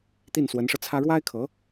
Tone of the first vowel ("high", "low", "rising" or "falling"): falling